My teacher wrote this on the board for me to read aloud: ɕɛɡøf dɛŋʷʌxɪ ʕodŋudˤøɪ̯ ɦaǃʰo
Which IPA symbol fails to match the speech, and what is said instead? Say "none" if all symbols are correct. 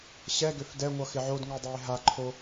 none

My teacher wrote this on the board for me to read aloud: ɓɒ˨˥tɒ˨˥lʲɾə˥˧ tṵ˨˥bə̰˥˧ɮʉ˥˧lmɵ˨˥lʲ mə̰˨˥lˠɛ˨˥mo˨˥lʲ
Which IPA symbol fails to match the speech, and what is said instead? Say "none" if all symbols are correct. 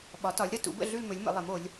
none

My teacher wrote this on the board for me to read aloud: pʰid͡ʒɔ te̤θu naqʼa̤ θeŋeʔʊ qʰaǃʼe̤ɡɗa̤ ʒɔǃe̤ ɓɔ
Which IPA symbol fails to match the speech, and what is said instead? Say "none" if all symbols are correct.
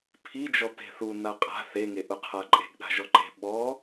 none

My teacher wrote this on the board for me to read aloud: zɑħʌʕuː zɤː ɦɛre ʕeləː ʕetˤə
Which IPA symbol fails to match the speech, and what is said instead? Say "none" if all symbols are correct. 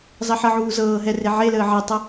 none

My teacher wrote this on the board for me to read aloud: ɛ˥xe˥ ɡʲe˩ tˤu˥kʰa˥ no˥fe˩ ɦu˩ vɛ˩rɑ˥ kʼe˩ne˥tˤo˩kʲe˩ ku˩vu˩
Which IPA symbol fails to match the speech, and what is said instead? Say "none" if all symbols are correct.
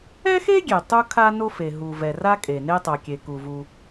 ɑ˥ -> a˥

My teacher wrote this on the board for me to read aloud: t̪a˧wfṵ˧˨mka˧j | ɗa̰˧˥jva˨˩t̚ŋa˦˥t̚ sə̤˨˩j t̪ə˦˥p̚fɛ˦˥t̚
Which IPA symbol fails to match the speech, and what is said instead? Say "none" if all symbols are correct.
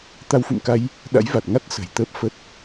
ɛ˦˥ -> ə˦˥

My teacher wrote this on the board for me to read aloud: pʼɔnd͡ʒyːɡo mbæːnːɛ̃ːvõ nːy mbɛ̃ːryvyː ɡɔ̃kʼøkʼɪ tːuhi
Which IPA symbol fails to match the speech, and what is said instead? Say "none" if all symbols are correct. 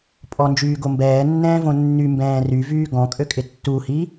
æː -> ɛː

